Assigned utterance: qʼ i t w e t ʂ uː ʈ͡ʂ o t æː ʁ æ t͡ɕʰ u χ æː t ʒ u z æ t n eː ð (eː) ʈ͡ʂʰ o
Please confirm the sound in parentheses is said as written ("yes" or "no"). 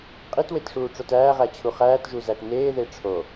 no